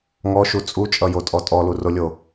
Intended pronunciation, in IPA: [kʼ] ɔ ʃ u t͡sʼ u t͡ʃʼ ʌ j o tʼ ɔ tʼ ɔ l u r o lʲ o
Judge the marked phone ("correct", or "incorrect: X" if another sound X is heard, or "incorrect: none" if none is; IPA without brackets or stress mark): incorrect: ŋ